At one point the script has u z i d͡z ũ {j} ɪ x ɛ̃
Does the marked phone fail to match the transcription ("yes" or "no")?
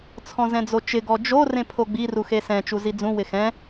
yes